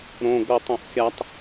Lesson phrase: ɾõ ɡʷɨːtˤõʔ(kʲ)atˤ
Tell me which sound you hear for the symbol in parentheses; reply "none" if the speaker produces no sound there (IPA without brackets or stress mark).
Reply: kʲ